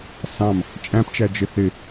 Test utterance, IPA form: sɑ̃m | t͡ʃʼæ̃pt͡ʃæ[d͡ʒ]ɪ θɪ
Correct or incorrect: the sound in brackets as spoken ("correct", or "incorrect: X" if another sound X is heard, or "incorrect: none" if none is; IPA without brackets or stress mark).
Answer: correct